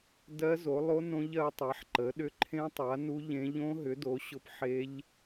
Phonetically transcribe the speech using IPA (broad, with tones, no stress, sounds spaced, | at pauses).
d ɜ˦˥ z o˨˦ lˠ o˦˥ n õ˦˥ ʎ ɜ˨˦ tˤ a˨˦ ħ ǃ ə˨˦ ɗ ʏ˦˥ ǃʰ ẽ˦˥ tˤ a˨˦ n u˦˥ ʎ ẽ˦˥ ʎ õ˦˥ ɦ ʏ˨˦ d o˨˦ ɕ ʊ˦˥ p ħ e˦˥ ʎ